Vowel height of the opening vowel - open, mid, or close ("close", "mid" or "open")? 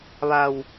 open